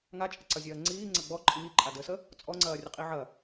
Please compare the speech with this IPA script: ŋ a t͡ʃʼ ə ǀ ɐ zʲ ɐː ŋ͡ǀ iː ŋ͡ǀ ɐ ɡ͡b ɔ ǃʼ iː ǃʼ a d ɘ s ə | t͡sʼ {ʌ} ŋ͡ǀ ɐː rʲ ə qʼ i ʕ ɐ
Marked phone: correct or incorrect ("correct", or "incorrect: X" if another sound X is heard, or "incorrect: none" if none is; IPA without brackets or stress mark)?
incorrect: ɔ